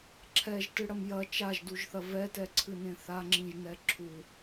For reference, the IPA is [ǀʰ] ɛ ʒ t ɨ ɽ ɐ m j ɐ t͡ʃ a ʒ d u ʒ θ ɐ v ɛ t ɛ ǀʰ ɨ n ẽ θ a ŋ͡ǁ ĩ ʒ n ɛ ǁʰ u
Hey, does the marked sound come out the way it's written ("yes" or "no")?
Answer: no